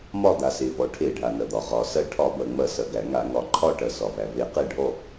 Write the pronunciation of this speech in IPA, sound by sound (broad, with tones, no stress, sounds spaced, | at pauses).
m ɒ˦˨ d̪ a˩ s e˩ v ɔ˩ ʈʰ e˧˩˧ ɖʱ a˩ n ɐ˩ d̪ ɒ˩ ʁ ɒ˩ s ɐ˦˨ ʈʰ ɒ˧˩˧ b ɐ˩ ŋ͡m ɐ˧˩˧ s ɐ˩ ɡ æ˧˩˧ ŋ a˧˩˧ ŋ ɒ˩ ǃʰ ɒ˦˨ ʈ ɐ˩ s ɒ˩ v æ˩ v e˧˩˧ q e˦˨ ɖʱ ɔ˦˨